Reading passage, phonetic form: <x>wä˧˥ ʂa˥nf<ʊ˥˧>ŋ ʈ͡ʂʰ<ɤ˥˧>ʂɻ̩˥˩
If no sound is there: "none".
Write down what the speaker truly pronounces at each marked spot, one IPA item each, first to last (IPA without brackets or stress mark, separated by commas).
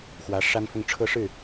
x, ʊ˥˧, ɤ˥˧